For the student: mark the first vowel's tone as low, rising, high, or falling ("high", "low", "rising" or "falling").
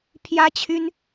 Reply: high